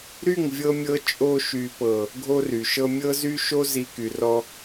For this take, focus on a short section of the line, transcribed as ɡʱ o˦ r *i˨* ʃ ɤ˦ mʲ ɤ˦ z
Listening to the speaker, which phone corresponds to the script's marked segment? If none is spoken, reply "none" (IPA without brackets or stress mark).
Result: y˨